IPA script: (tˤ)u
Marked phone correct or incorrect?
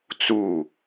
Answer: incorrect